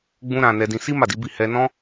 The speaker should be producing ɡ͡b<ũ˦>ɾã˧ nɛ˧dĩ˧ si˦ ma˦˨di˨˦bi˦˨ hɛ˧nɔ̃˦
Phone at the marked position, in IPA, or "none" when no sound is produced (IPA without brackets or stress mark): ũ˦